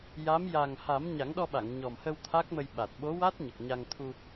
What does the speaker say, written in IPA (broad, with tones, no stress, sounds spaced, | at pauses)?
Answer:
j a˧˥ m j a˨˩ ŋ h a˨˩˦ m ɲ a˨˩˦ ŋ ɗ ɔ˧ ɓ a˨˩˨ ŋ ɲ ɔ˨˩ m h ə˧ w t̪ʰ a˦˥ k̚ m ə˧ j ɓ a˨˩ t̚ ɓ o˧˥ w a˦˥ t̚ ɲ ə˨˩ k̚ ɲ a˧ ŋ t̪ʰ u˧